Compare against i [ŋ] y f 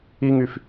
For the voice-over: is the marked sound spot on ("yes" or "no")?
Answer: yes